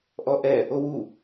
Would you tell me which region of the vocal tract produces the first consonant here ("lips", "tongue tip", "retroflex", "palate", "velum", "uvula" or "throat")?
throat